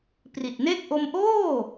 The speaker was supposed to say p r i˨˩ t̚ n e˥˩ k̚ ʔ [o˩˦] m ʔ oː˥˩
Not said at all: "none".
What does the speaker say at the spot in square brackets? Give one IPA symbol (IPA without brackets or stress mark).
o˧